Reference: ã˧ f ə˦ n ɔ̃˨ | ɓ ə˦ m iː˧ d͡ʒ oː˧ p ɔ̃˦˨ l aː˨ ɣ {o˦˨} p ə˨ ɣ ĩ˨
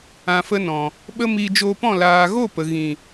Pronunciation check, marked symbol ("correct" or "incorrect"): correct